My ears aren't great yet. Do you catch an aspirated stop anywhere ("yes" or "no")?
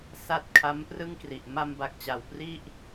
yes